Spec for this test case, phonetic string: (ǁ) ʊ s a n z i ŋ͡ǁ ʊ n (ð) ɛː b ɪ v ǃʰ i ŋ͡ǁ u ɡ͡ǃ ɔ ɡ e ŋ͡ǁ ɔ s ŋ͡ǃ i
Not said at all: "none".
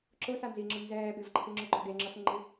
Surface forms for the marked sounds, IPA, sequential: ǁ, z

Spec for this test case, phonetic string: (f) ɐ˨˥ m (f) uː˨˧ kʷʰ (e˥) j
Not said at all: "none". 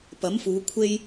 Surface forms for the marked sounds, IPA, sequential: p, f, e˥

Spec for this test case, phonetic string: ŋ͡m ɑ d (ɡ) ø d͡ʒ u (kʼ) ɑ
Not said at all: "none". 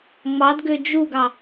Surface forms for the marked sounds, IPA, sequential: ɡ, ɡ

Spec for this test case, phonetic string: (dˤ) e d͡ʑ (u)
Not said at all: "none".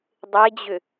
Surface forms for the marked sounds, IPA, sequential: dˤ, ʏ

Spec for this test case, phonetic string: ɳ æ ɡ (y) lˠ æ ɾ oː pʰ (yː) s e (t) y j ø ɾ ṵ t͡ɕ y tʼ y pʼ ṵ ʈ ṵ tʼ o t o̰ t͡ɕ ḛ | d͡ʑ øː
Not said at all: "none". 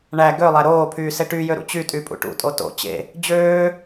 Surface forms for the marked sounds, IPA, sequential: ø, yː, ʈ

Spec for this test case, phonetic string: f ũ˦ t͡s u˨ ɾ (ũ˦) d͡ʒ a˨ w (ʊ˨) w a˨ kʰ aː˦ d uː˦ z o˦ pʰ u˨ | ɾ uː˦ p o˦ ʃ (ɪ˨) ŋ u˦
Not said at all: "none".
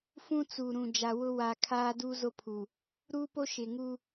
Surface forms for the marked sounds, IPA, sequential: ũ˨, ʊ˦, ɪ˨

